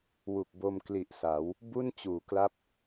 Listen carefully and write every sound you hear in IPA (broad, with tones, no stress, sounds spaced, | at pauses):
w u˨˩ k̚ b o˧ m k l i˨˩ ʔ s a˩˦ w | b u˥˩ n t͡ɕ uː˩˦ k l a˦˥ p̚